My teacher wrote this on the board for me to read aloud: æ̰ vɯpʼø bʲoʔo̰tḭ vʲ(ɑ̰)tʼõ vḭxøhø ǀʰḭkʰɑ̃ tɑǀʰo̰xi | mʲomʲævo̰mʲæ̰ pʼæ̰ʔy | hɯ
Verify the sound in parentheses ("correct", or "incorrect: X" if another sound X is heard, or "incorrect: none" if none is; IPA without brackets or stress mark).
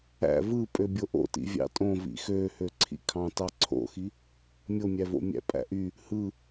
correct